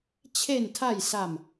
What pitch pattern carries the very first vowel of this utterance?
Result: low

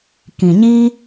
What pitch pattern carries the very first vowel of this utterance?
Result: low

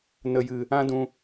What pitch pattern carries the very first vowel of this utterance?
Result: low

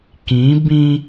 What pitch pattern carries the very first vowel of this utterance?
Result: rising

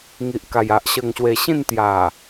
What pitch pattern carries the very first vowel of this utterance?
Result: low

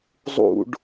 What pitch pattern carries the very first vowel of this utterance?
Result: low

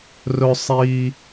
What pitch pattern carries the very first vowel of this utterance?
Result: low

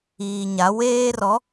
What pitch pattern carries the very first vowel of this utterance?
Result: low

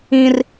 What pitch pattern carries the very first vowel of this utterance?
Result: high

